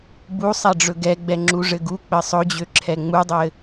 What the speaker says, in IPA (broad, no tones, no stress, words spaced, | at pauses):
busˤɛɖ͡ʐɵ ɡɛɡ͡bɛŋ͡ǁuʐɘ ɡuk͡pɘ sˤɵd͡ʑøǁʰɛ ŋ͡mudˤɘ